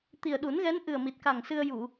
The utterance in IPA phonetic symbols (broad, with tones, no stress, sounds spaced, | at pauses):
t̪ i˨˩ ə̯ ɗ u˨˩˦ n ɣ ɛ˧˥ n ʔ ɨ˨˩ ə̯ m i˨˩ t̚ k a˨˩ ŋ s ɨ˧ ə̯ j u˨˩˨